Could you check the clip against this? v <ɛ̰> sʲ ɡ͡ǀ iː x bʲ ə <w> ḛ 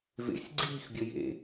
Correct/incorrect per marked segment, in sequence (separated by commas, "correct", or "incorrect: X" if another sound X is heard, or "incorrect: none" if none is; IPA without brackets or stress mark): incorrect: ḛ, incorrect: j